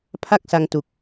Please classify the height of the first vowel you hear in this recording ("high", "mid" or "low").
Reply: low